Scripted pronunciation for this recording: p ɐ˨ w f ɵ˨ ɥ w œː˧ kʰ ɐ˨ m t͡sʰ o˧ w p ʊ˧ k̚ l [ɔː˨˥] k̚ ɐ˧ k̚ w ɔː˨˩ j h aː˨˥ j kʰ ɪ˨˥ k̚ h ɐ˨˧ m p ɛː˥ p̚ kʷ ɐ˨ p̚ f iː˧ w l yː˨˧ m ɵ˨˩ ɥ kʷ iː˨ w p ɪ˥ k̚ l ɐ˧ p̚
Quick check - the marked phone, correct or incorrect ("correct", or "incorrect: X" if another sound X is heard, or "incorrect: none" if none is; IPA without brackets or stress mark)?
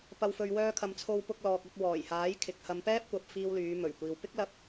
incorrect: ɔː˨